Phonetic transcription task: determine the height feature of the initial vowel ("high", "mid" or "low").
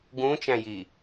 high